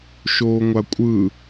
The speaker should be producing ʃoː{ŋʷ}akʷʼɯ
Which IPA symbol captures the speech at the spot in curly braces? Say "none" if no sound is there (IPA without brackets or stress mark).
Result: ŋʷ